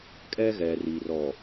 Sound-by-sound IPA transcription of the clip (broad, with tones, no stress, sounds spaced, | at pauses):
kʼ ɛ˦ ɣ ɛ˨ r i˨ r ɔ˨